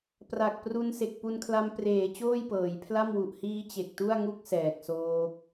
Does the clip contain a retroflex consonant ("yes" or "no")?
no